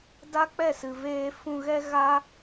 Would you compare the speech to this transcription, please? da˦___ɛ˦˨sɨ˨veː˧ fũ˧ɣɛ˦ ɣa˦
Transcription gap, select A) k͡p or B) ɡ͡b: A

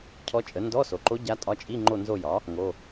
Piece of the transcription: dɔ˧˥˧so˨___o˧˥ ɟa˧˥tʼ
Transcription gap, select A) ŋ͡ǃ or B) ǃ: B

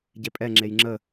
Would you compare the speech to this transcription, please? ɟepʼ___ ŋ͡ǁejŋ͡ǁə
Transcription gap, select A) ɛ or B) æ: A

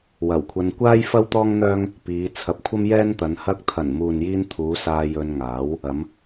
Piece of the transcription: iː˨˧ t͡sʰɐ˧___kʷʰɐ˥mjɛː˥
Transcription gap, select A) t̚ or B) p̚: B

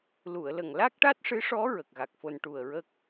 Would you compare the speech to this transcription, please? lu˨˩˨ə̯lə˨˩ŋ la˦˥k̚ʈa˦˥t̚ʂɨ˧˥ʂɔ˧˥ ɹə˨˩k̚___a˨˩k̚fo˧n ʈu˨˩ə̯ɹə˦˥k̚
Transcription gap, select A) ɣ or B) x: A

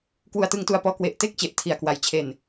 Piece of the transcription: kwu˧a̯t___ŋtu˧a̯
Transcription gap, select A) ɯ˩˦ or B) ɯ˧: B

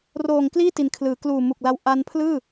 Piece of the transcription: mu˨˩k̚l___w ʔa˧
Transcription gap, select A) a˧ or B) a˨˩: A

